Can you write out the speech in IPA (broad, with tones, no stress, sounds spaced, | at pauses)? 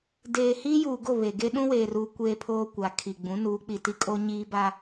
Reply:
d eː˨ h iː˦ j uː˨ ɡ o˦˨ β e˨ ɡ e˦ ɗ ũ˦ w eː˨ r uː˨ kʷ eː˦ pʰ oː˦ kʷ a˨ kʰ i˨ ɡ͡b ũ˨˦ n uː˨˦ k͡p i˨ t i˦ kʼ o˦ ɲ iː˦ b a˦